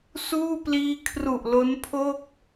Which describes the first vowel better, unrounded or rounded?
rounded